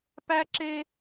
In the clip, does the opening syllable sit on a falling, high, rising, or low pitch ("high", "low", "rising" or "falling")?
high